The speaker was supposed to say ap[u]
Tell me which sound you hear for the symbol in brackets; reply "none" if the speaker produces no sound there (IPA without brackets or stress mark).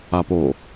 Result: o